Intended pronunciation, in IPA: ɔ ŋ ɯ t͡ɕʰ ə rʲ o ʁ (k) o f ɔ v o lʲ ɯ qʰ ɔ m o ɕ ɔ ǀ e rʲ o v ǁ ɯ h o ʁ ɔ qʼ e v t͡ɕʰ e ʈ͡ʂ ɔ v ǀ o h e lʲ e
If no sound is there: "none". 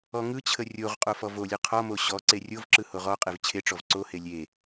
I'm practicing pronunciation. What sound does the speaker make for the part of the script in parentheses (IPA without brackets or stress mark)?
qʼ